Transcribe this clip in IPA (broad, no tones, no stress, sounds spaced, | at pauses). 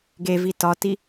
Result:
ɡ e v i t ɒ t i